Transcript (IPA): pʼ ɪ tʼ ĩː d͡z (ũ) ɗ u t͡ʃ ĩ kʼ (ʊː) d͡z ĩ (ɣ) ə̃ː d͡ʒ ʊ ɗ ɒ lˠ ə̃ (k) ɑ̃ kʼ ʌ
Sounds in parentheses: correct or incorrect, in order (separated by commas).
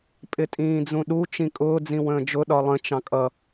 correct, correct, incorrect, incorrect